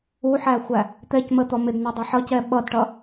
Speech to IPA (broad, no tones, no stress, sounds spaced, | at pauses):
u ħ æ xʷ æ | t̪ ɛ c m ə t̪ ɔ m ɪ d n æ dˤ ɛ ħ ʌ c ɛ ɓ ʌ d ʈ ʌ